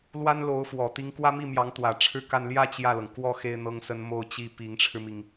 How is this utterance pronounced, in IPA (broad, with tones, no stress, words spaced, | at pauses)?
lwa˥nlo˧˥ʊ̯fwɔ˨˩ t̪i˧˥ŋkwä˥ mi˥˩ mjɑ˧˥ŋt̪wä˨˩ʈ͡ʂʰɻ̩˥˧ka˥˧n ljä˥˧ t͡ɕjä˥˩lɤ˩ŋ kwɔ˥˩ xe˥ɪ̯n̪ɤ˥ŋsə˥n mo˥˧ʊ̯t͡ɕi˥˩ pi˧˥ŋʈ͡ʂʰɻ̩˧mi˩ŋ